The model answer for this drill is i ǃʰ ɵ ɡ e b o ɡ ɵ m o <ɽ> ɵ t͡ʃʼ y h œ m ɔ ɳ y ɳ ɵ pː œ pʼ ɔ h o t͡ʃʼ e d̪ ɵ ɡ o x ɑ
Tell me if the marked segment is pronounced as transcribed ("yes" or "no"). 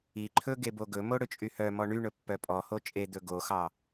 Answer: yes